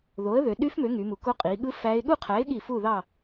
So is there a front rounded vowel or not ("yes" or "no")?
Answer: yes